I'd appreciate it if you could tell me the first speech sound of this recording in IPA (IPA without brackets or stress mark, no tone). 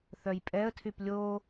θ